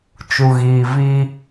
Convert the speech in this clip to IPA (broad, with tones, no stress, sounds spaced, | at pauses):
t͡ʃ u˨ ɣ iː˨ v iː˦